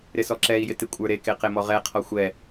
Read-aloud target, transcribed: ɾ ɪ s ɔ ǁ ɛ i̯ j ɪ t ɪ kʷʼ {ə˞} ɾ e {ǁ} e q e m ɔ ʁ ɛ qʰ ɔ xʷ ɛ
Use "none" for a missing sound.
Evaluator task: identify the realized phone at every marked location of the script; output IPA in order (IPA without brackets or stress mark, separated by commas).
ə˞, k